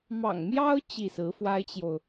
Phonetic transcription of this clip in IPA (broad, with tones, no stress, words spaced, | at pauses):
mɑ̰˨˩ŋmjɑ˥ʊ̯ t͡ɕi˥˩sɹ̩˧˥ fwa˥ɪ̯t͡ɕjo˨ʊ̯